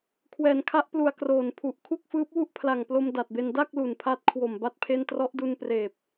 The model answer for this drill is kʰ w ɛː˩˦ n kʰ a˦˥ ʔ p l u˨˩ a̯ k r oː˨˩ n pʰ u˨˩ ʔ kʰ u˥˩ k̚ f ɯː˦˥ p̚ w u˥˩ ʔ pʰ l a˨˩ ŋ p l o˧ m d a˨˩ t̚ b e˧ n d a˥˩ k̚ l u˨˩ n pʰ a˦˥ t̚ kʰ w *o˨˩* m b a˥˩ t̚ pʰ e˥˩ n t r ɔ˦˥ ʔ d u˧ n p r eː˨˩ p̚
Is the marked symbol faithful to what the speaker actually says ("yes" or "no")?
yes